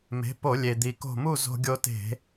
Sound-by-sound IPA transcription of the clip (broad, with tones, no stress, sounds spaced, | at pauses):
m e̤˩˥ p o˧˩˧ lʲ e˩ d̪ i˩ k o̤˧˩ m u˥˨ z o̤˧ ɡʲ o˧ t e̤˧˩˧